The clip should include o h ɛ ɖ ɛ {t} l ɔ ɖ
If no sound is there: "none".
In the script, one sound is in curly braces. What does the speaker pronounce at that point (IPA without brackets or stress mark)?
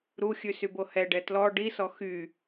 t